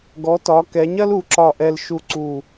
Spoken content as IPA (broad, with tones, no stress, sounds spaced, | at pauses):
ɡ ɔ˩˧ t ɒ˩˧ k ɛ˩˧ ɲ ɐ˥ l u˩˧ ǁ ɒ˧˩ ʔ ɛ˧ l ʃ u˧ ǀ u˧˩